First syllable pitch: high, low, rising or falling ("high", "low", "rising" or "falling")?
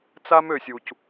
high